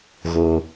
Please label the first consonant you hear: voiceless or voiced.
voiced